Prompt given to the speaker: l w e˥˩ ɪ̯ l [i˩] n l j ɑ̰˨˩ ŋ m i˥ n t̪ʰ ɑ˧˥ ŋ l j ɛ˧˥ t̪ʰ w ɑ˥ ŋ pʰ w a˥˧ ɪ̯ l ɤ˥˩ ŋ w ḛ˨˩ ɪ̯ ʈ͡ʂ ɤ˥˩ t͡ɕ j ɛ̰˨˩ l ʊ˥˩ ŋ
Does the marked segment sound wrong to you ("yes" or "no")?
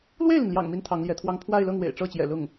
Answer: no